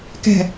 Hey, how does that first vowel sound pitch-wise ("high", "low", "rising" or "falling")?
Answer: low